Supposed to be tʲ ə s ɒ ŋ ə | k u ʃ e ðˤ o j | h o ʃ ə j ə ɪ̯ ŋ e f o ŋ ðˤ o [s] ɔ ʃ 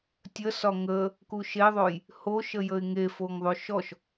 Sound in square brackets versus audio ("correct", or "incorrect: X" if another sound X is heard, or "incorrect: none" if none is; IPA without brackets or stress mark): incorrect: ʃ